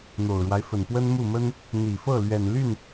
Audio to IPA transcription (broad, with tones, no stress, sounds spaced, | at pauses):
n̪ o˨˩ ʊ̯ ɻ w a˦ ɪ̯ f ə˨˩ n p w ə˥ n m u˥˩ m ə˥ n | n̪ i˨˩ f ɤ˥˩ l ɥ ɛ˨˩ n l y˥˩ n